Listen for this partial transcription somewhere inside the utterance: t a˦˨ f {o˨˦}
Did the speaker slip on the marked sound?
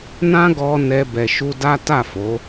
no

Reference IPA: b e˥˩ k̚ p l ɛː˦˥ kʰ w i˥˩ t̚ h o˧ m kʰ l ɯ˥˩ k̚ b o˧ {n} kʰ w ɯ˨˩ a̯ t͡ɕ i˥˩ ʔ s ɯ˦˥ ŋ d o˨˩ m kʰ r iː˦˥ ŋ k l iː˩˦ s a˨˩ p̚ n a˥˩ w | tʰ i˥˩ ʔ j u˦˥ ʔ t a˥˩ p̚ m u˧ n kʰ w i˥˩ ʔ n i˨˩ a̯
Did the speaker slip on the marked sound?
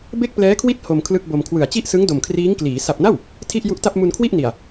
yes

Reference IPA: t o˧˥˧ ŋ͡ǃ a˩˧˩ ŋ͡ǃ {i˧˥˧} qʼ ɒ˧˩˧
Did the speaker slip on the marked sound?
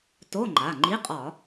no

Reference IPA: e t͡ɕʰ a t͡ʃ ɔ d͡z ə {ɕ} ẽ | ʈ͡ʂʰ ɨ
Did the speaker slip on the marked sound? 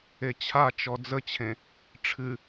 yes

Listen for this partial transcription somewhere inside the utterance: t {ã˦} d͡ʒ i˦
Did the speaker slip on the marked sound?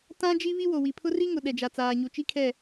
no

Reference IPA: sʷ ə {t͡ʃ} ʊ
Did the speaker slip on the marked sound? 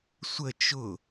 no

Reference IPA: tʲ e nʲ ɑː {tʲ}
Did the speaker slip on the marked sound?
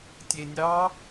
yes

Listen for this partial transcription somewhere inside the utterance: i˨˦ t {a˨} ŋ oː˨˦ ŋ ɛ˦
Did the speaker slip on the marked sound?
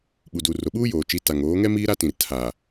no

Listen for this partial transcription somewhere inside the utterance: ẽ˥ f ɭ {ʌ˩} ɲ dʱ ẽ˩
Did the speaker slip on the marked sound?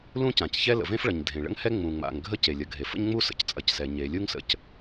no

